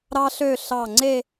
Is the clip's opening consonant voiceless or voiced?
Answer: voiced